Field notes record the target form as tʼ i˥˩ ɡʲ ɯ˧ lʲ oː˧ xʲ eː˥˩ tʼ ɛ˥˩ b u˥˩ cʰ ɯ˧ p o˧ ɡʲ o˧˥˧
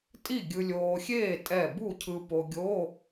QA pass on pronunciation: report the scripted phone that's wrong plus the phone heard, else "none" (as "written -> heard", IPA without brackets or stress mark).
none